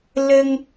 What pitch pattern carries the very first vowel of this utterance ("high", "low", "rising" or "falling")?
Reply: high